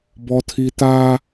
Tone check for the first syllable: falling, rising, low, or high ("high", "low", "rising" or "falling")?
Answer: high